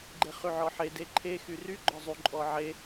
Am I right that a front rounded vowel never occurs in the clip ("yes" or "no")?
no